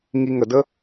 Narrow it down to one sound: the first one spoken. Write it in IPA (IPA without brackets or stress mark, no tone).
ŋ